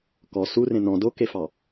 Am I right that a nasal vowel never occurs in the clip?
no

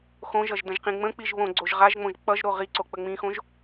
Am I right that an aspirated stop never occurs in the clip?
yes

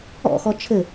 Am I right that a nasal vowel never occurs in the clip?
yes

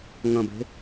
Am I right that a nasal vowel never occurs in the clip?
no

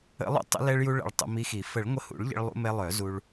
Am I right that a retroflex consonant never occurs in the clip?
no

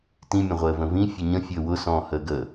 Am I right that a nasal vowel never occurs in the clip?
no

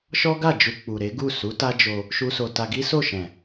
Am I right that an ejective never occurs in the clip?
yes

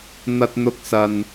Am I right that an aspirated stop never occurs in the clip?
yes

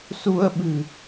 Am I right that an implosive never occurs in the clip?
no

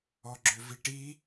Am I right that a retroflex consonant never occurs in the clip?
no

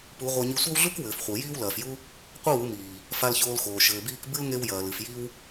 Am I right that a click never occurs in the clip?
yes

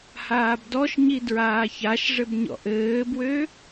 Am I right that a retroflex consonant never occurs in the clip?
no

